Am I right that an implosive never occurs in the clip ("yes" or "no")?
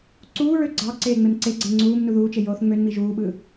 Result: no